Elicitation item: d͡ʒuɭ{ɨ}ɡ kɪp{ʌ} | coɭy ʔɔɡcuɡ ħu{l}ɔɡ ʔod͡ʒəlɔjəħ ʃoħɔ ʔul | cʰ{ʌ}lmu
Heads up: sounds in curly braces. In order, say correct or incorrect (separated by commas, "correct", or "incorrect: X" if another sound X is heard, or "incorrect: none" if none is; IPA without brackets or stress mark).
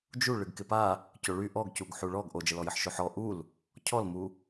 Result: correct, incorrect: a, incorrect: ɭ, incorrect: ɔ